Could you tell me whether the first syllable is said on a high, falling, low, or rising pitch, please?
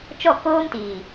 falling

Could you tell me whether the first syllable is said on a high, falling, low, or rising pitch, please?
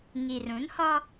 low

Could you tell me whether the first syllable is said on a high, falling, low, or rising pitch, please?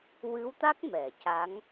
rising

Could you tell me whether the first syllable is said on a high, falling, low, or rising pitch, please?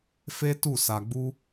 high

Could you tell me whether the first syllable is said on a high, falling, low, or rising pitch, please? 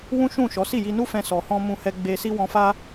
high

